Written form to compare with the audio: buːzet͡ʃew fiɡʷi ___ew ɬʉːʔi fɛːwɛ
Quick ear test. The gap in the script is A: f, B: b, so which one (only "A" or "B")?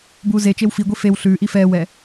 A